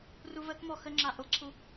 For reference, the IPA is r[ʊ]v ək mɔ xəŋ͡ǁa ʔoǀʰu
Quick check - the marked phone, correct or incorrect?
incorrect